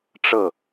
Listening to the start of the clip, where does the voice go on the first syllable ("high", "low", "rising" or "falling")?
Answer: falling